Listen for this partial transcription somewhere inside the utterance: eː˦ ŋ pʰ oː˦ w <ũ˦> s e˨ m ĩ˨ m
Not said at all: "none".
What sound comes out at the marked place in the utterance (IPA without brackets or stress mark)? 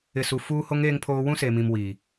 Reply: ũ˦